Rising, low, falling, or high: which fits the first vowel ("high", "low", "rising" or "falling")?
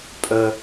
low